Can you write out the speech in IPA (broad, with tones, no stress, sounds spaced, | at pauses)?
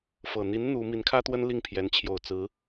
f ɤ˨˩ n̪ i˧˥ n n̪ u˧˥ m i˧˥ n kʰ ä˥ t̪ w ə˥ n l i˥˩ ŋ pʰ j ɛ˧˥ n t͡ɕʰ j o˨˩ ʊ̯ t͡s ɹ̩˧˥